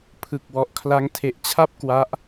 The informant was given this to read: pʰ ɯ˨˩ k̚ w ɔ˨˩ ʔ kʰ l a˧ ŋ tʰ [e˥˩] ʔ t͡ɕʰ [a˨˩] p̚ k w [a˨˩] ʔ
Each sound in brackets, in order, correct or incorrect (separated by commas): incorrect, incorrect, incorrect